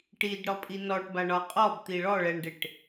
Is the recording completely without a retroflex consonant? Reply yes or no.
no